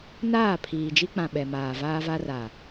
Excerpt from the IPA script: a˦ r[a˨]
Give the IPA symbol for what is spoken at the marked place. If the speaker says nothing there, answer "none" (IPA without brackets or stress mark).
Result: a˨